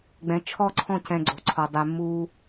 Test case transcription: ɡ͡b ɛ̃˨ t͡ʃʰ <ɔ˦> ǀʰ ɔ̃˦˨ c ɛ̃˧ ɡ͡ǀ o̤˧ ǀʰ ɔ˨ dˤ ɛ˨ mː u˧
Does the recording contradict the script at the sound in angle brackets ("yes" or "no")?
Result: no